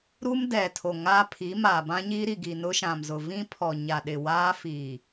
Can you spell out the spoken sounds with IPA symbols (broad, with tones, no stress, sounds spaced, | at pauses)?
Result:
ɾ u˦ m d ɛ˨ tʰ o˨ ŋ a˦ pʰ i˨˦ m a˨ b ã˦ ɲ i˦ ɾ i˨ ɡ i˨ n ʊ˦ ʃ ã˨ m z ʊ˨ v ĩ˦ pʰ ɔ˨ ɲ a˨ ɗ ɪ˨ w aː˦ f iː˨